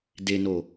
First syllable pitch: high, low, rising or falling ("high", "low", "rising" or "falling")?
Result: low